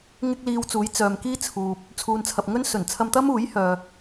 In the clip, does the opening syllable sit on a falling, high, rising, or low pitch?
high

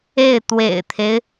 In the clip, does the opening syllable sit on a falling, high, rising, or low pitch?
falling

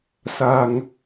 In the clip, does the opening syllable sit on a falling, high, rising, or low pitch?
low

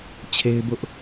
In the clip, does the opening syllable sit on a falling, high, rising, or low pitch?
high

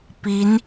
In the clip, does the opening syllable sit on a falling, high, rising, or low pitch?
rising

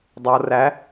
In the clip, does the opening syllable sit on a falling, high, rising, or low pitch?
low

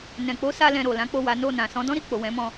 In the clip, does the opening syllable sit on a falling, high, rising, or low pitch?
low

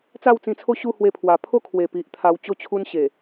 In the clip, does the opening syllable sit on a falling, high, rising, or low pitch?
falling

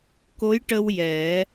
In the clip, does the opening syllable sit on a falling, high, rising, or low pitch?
rising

